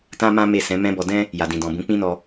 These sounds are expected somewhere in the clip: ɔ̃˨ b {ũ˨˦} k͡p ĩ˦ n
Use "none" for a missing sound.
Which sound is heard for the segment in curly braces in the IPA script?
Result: ũ˨˦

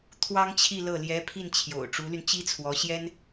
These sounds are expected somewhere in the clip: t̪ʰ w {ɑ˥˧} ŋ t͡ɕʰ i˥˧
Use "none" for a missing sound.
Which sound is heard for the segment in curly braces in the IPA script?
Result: ɑ˥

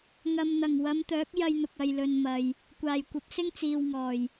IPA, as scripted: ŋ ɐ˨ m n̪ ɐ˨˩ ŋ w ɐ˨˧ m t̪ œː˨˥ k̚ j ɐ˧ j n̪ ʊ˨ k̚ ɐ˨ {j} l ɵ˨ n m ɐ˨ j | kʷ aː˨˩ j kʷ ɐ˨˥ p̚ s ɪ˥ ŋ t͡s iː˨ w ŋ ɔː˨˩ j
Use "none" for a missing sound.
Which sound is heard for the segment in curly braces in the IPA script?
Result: j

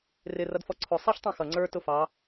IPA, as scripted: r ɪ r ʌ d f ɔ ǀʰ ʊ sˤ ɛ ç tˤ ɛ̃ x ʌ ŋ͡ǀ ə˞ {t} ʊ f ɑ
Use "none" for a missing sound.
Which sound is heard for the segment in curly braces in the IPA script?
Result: t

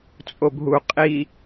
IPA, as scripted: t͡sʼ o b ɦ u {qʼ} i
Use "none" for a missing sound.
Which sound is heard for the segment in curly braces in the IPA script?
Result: qʼ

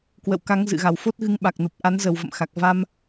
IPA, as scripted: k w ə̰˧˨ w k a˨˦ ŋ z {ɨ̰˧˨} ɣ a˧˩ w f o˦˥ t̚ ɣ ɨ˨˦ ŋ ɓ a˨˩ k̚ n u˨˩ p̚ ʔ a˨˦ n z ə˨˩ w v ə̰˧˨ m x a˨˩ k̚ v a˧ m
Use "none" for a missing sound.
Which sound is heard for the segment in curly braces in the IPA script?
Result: ɨ̰˧˨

